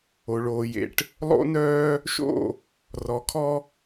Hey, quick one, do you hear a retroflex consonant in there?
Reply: yes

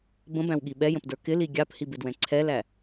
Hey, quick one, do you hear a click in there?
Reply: yes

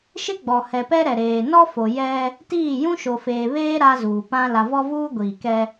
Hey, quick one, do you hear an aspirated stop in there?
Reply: no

